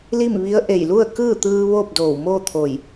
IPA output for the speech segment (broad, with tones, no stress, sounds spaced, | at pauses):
l i˥˨ m ʋ i˧˥ ə̯ ʔ e˧˩ j l u˥˨ ə̯ k ɯː˥˨ t̪ ɯː˧ ʋ oː˥˨ p̚ d oː˧˩ w m oː˥˨ t̪ʰ o˧˩ j